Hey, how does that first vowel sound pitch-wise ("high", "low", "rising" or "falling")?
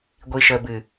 low